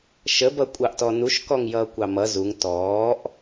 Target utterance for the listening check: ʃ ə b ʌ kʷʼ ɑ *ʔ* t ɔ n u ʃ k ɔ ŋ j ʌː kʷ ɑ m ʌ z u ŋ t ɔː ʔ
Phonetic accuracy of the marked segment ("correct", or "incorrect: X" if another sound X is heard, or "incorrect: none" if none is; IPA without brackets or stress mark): correct